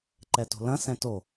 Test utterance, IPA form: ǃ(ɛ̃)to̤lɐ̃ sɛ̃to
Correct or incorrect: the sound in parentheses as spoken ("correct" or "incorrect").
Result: incorrect